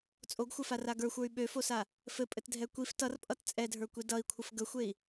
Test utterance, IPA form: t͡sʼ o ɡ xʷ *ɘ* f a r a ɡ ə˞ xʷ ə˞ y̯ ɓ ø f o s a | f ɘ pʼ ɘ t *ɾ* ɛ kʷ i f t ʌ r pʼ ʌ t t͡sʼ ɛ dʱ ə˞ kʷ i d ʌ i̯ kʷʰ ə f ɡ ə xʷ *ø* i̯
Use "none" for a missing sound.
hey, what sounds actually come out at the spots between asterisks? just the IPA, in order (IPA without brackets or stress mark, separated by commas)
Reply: ɘ, dʱ, e